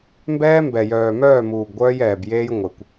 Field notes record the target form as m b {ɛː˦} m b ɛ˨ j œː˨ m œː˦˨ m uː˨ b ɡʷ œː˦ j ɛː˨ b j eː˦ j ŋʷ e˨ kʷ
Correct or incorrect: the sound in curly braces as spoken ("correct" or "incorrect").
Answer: correct